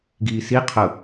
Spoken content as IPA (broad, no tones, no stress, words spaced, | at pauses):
ɡiːsi qʰʊ